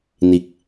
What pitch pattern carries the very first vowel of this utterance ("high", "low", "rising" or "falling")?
low